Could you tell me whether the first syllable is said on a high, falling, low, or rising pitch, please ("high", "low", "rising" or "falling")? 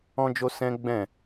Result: high